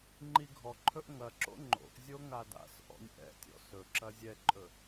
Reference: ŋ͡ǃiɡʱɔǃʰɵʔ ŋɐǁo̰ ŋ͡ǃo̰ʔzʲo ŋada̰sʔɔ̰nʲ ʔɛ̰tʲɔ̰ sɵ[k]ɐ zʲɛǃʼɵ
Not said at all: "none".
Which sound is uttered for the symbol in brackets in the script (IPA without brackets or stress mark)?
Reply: ǁ